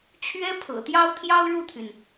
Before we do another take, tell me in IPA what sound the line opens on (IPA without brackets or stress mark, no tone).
t͡ɕʰ